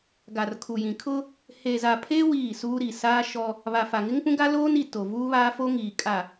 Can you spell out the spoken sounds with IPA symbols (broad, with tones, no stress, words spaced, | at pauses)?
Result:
ɡa˨rkʰu˨jĩ˨ kʰʊ˦ | he˨za˨pʰe˦ wiː˦˨suː˦ɾi˨ saː˦ʃɔ˦ | βa˨fa˨ŋɪ˦ŋpũ˦ ɡa˦loː˦ni˨ to˨vuː˦βaː˦fo˦ ŋiː˨kʼa˨